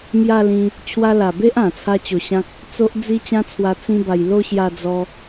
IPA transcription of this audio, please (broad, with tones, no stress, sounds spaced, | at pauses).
m j a˥˧ l ĩ˧ | t͡ɕʰ w a˧ l a˨˩ b e˦ ʔ ã˨˩ t͡sʰ a˦ t͡ɕ o˧ ɕ ã˦ k̚ | t͡s o˦ ʔ d͡z i˦ t͡ɕ ã˦ t͡sʰ w a˧ t͡s ĩ˦ b a˧ j l o˥˧ ɕ j a˧ d͡z ɔ˧